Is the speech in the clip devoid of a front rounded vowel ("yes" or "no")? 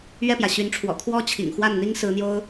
no